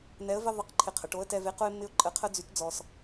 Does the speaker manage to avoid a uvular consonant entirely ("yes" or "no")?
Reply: no